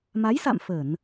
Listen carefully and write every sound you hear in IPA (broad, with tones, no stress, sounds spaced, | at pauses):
m a˨˦ j s a̰˧˨ m f ə˧˩˨ n